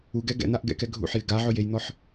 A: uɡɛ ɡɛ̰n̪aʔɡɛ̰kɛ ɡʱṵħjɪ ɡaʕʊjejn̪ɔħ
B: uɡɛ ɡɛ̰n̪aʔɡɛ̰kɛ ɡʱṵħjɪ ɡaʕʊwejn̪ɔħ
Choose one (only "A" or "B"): A